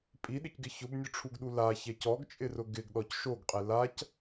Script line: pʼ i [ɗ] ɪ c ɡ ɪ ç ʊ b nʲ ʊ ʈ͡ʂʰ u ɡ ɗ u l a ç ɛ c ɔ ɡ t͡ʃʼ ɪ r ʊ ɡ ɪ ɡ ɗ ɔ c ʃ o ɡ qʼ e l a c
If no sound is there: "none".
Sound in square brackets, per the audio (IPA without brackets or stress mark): ɗ